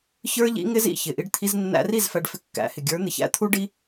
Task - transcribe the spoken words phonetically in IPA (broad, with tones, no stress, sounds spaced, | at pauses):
ç ə˞˦ ʎ ḭ˦ ŋ ɪ˦ z ḭ˨ ç ɪ˨ ʔ i˧ ɖ t̪ʰ i˧ z nː æ̰˧ r i˦˨ z f æ˧ ɖ f ɪ˧ kː æ̰˨˦ h ɪ˨ ɡʲ ə˞˨˦ n̪ ɪ˨ ç æ̰˧ t̪ʰ u˦ ɖ i˦